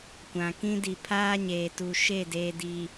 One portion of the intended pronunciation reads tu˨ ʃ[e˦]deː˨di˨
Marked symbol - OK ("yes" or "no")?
no